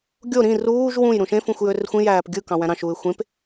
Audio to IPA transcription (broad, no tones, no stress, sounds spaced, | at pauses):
ɡʲ o ɾ ĩ r uː ʒ w ũ j ɾ ũ ʃ ẽ f ũ xʷ j ø r xʷ ĩ j æː p ɡʲ ɯ k ɑ̃ w æ̃ ɾ ɑ̃ ʃ uː ɪ̯ xʷ ẽ p